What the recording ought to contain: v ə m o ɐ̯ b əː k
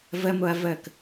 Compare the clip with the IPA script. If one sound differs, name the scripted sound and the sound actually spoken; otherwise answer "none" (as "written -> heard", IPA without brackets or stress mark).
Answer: b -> v